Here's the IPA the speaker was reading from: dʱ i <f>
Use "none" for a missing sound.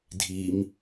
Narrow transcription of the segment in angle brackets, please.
m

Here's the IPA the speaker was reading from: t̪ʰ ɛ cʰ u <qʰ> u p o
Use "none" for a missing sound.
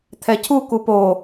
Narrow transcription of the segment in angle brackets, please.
k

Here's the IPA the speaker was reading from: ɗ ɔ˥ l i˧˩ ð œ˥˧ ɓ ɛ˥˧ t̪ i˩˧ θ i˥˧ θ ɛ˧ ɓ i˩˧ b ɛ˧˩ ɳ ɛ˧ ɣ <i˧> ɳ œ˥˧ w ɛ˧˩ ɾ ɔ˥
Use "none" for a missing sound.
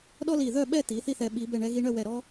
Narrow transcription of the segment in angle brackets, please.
i˧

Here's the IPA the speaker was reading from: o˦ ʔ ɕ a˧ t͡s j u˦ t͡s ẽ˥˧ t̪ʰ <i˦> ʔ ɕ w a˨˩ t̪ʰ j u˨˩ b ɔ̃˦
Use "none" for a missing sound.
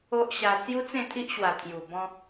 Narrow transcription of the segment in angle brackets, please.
i˦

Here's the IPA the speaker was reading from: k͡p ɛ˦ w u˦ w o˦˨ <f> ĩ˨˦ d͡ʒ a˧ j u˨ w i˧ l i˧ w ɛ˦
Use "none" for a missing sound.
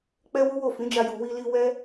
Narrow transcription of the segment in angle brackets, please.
f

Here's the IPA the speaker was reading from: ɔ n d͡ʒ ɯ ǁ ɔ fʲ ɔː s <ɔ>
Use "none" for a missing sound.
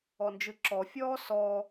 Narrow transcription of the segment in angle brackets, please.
ɔ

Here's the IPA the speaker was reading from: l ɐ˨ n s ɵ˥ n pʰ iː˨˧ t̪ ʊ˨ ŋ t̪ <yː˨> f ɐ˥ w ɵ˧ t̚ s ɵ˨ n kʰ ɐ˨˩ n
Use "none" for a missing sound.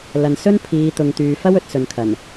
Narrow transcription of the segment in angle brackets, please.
yː˨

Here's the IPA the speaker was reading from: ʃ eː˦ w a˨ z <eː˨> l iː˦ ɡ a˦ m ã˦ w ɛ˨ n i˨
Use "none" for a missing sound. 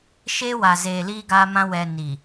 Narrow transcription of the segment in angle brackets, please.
eː˨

